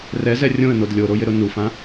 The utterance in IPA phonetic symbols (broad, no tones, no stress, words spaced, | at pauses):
rɛzɛ rʲõə̯nod lʲoɾojɪɾʊ nufã